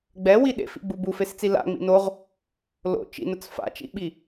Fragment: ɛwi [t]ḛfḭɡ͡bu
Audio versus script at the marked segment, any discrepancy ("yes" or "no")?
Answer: yes